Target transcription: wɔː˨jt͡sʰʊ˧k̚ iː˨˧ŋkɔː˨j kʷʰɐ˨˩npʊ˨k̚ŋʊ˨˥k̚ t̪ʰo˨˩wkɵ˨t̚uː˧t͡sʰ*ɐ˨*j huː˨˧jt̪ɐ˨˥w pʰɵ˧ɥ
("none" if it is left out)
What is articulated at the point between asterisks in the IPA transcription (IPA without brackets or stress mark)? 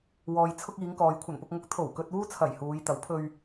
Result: ɐ˨˩